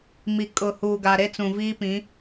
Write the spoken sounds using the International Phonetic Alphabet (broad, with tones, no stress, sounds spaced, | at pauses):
m i˨ kʼ ʊ˨ h uː˨ ɡ a˨ ɾ e˦ t͡s ũ˨ v iː˦ p ĩ˨˦